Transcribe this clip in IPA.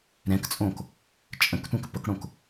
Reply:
ɾɛ̃kt͡sʼõk | t͡ʃʼə̃ktʷɛ̃k pəkɽõk

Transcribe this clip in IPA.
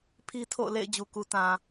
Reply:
pʰi˦tʰo̰˦˨ʊ̯ lḛ˦˨ɪ̯ d͡ʑu˨ku˨tã˨

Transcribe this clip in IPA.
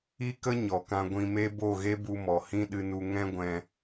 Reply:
i˦kə˦ ɲɔ˨kã˧ ɡʷĩ˧me˦ bo˦˨ɣe˦bu˧mɔ˨ hĩ˦ɗɨ˧nu˧ ŋɛ̃˦ ɡʷɛ̃˧

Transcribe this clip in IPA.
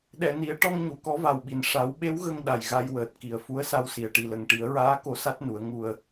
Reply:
ɗɛ˨˩˨ni˨˩˦ə̯ ʈɔ˧ŋ ɲu˨˩˨kɔ˧˥va˨˩wɓi˨˩n ʂa˨˩˦wɓe˧˥w ɣə˧ŋ ɗa˨˩jɣa˧jwəː˨˩t̚ki˨˩ə̯ fu˧˥ə̯sa˧wsi˨˩ə̯ ʈi˨˩lə˨˩ŋʈi˨˩˦ə̯ɹaː˧˥ ko˧˥sa˦˥t̚nu˨˩˦ə̯ ŋu˧ə̯

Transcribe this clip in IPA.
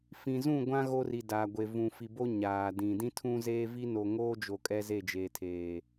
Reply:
fĩ˨zũ˦˨ɡʷã˦ ɣo˦ri˨daː˨ɡʷe˨ vũ˨fi˨bo˦ ɲaː˨dĩ˨ dĩ˦tʰũ˦zeː˦vi˦ no˨ŋoː˦d͡ʒo˨ kʼɛ˦ze˦˨d͡ʒeː˨tʰeː˨

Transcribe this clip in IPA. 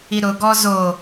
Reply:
iɾʊ ɡɔzo

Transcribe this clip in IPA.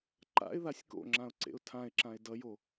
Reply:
ǃa̰ɪ̯ðasʲ ko̰ŋ͡ǁãʊ̯ ǀḛʊ̯tʰãɪ̯ǁãɪ̯ dʌjo

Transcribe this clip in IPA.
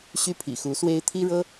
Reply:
ɕy˦pʰḭ˨˩xu˨˦swe˦ɪ̯ t̪ʰi˦ɻɤ˦

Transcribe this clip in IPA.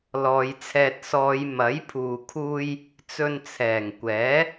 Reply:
lɔː˨˧jt͡sʰɛː˧t̚ sɔː˨˧j mɐ˨˥jpʰuː˨kʰuː˧j | t͡sɵ˧nt͡sʰɛː˨˩ŋkʷɛː˨˥

